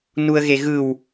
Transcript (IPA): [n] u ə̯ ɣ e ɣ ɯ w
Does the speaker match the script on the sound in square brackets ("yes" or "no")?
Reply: yes